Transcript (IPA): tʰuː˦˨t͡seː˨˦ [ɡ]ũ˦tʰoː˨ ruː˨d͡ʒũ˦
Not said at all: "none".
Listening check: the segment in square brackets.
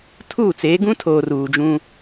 ɡ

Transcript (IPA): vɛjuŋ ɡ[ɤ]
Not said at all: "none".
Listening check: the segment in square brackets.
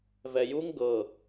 ɤ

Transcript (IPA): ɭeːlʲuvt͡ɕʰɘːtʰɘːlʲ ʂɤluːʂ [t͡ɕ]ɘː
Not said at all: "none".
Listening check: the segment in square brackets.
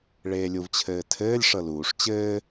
t͡ɕ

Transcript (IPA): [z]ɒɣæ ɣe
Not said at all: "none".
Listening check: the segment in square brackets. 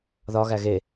ð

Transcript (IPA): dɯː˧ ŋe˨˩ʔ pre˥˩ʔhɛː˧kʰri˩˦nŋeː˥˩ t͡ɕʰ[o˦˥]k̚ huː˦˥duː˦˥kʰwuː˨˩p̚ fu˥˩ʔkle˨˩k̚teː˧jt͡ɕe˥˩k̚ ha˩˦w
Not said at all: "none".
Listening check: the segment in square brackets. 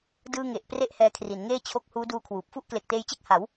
o˦˥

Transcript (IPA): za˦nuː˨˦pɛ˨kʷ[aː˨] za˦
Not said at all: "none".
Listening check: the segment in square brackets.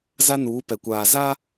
aː˨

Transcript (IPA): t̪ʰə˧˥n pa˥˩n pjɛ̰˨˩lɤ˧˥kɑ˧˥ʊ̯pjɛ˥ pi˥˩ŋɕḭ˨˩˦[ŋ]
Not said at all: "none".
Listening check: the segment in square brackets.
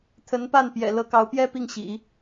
none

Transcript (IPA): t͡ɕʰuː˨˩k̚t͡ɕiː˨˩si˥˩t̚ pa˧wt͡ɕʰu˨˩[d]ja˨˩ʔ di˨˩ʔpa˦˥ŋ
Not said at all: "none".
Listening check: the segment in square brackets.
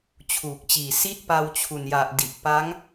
n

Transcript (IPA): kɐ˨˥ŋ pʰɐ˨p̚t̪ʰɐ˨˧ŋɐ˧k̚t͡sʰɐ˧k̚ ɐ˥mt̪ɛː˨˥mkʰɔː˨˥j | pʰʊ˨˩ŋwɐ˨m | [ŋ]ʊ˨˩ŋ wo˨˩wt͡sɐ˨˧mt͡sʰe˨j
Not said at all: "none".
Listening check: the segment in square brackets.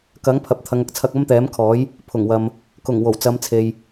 k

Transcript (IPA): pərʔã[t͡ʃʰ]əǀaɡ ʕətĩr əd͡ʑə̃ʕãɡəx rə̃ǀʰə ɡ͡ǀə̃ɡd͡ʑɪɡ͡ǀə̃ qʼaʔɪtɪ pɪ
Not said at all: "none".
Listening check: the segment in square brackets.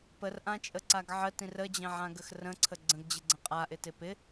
t͡ʃʼ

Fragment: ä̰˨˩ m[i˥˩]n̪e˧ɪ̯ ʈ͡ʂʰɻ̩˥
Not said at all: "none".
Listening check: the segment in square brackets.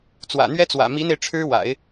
i˧˥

